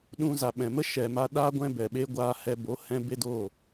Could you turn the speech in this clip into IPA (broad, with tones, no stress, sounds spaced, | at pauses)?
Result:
ɗ ũ˧ z a˨ ɓ ɛ̃˨ m ə˦ ʃ ɛ˨ m a˧ ɗ aː˦ ɡʷ ɛ̃˦ b ɛ˨ ɓ e˦ ɡʷ aː˧ h ɛ˧ b o˨˦ h ɛ̃˧ b e˦ d o˦˨